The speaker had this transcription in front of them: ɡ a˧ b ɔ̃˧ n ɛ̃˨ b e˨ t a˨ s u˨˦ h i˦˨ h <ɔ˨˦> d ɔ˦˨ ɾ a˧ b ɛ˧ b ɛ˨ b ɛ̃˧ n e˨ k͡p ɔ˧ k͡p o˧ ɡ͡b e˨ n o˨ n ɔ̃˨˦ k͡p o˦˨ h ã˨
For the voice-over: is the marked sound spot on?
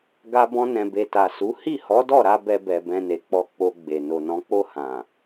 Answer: yes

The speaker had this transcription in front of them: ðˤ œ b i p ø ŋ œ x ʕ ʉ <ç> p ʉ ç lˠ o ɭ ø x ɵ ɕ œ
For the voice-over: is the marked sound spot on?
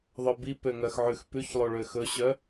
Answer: no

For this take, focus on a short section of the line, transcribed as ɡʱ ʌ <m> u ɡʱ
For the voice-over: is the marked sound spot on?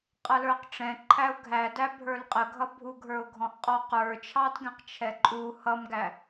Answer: no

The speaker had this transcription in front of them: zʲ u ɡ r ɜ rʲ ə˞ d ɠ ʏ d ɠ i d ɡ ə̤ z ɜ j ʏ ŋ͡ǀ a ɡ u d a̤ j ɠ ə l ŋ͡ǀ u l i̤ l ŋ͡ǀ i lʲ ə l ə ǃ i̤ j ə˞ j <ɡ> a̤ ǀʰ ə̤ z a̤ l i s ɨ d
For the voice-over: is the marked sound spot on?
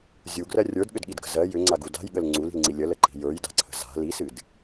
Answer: no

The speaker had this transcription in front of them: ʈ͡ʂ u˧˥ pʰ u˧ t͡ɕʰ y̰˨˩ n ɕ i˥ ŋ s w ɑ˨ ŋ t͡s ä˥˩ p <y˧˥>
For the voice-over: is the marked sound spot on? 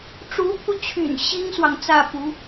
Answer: no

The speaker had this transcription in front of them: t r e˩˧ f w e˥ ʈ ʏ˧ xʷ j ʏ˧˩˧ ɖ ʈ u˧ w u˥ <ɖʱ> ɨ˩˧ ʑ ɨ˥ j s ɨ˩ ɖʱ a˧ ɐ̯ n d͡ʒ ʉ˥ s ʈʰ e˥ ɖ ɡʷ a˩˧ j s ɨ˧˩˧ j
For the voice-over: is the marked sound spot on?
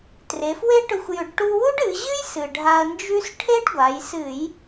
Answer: no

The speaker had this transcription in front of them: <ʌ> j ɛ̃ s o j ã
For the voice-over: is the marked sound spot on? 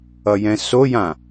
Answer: yes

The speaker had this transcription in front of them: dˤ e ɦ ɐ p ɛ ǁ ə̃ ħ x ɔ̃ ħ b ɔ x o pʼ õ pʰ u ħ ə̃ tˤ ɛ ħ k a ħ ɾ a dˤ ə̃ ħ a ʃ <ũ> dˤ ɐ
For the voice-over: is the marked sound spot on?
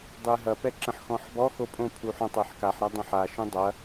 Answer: yes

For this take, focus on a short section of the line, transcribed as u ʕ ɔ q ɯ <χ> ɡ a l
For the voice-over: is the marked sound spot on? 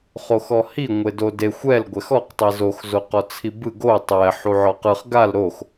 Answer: yes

